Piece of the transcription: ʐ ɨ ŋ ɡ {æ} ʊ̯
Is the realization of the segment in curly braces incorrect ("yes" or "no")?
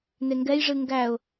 no